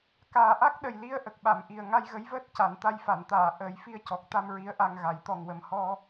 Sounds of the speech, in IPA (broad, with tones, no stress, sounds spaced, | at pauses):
k aː˨˩ ʔ a˦˥ k̚ ɗ ə˨˩ j l i˧ ə̯ ʔ ə˨˩ k̚ ɓ a˨˩˨ m ʔ i˨˩ ə̯ ŋ a˧ j ɣ ə˧˥ j v əː˦˥ t̚ c a˨˩˨ n t̪ a˧ j f a˨˩˨ n t̪ aː˨˩˨ ʔ əː˨˩˦ j f i˧ ə̯ c ɔ˨˩ k̚ t̪ a˧ m ɹ i˧˥ ə̯ ʔ a˧ ŋ ɣ a˨˩˦ j t̪ ɔ˨˩ ŋ w ə˨˩ m h ɔ˧